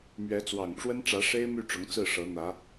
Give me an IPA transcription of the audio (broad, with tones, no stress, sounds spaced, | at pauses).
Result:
m ɥ ɛ˧˥ t͡s w ɑ˨˩ ŋ ʈ͡ʂ w ə˥ n ʈ͡ʂ ä˧˥ ʂ e˥ ɪ̯ m y˥˩ ʈ͡ʂ ʊ˧˥ ŋ t͡s ɹ̩˥˩ ʂ ɤ˧˥ n̪ ä˧˥